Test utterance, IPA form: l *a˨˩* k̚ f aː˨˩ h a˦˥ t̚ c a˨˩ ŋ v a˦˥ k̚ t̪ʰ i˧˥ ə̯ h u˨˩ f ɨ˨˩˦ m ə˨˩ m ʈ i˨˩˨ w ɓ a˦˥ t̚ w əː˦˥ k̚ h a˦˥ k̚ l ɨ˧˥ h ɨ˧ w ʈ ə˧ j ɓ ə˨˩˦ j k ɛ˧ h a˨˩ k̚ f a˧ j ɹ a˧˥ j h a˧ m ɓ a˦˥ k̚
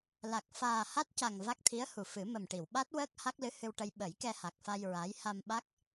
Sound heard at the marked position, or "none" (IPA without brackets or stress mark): a˨˩